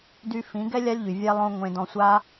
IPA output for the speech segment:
d y˧ f ĩ˨˦ ɡ ɛ˦ lʲ a˦ lʲ ʎ y˨ vʲ ɛ˦ lˠ õ˦ ŋʷ ẽ˧ d ɔ̃˧ sʷ a˦

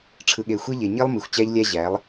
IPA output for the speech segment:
ʈ͡ʂʰ ɯ˨ ɠ e˨ xʷ e˦ ʎ e˨ ɲ i˦ lˠ m i˨ xʷ t͡ɕ æ˦ ʎ lʲ æ˦ ʑ æ˨˦ lˠ

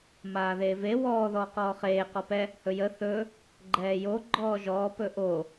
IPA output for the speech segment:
m aː ð eː v e w ɔː ð ɔː q ɔː χ eː q ɔ p ɛ | h ɵ j ə θ ɵ | ɡ͡ǃ ɛː j o ɡ͡ǃ ɔː ʒ ɔː p ɵ ʔ o

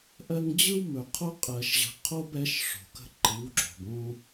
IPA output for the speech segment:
ʔ ɜ˦ ŋ d͡ʑ ɯ˦ w m ɵ˨ qʰ o˦ qʼ ɜ˨ ʃ ʑ ə̤˨˦ qʰ o˦ b ɛ˨˦ ʃ ʂ o̤˨ k ə̤˦ ǃ ɯ˨˦ w ɡ͡ǁ o̤˨ b õ˦

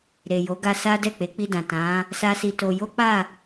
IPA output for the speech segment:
ɾ e˨ j o˨˦ ɡ a˧ s a˦ d ɛ˦˨ k͡p e˨˦ k͡p i˧ d ã˨ t ã˨˦ | s a˦ s i˧ t o˧ j o˦ k͡p a˦˨

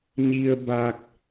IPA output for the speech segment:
ɲ i˧ ə̯ b aː˧ k̚

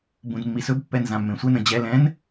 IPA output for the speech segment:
b ũ d mː i s ɵ b pː ɛ n z ã mː ẽ sʷ ɛ n ə̃ d͡ʑ ɛ l ɛ̃ n

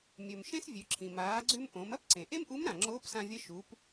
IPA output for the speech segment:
mʲ ɵ˩ m ʃ ẽ˥ s vʲ ʉ˩˧ ǁʰ ĩ˩ m aː˩˧ ɡ͡ǀ ʉ˧ m ʔ õ˩˧ m ɐ˥ p ǀ ẽ˩ ʔ e˥ m ʔ u˧˥ m ɾ ã˩ ŋ͡ǁ oː˧˥ p s ã˧ vʲ ɐ˧˥ ʃ u˩˧ p

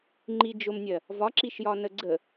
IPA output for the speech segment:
ŋ͡ǃ i d͡ʒ ʊ m nʲ ɜ | v ɒ ǁ i ʃ j ɒ n ə ɡ͡ǀ ə

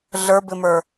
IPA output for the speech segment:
ɮ ə˞ b ɪ m ə˞

